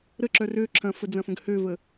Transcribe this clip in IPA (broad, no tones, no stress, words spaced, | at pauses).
ɾəǁœr ø ǁʰɐ̃fəd͡zɐ̃fə̃ɡ høvə